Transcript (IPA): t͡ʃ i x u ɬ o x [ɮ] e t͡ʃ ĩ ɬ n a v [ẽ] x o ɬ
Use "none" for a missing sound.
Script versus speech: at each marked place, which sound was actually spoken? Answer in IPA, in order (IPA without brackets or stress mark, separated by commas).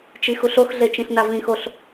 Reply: ɮ, ĩ